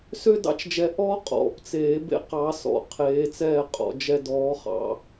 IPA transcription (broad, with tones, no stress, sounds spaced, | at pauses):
s ø˦ d ɑ̰˦ t͡ʃ d͡ʒ ɛ˨˦ ʔ ɔː˦ qʼ ɔ̰˨˩˦ p t͡s eː˨˩˦ b ḛ˦ q ɑ˨˦ s ɔ̰˨˩˦ qʰ eː˨˦ t͡s ɛː˥˨ qʼ ɔ̰˨˦ d͡ʒ ɛ˦ d ɔː˨˦ χ ɑ̰˨˦